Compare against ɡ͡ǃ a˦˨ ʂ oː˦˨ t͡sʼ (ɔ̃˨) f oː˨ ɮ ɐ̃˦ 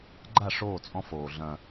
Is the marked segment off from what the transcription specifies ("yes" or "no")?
yes